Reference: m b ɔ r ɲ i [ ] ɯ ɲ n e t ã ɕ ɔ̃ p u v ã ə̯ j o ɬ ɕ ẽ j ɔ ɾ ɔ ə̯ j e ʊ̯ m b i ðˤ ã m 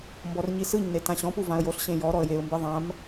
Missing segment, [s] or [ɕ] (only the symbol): s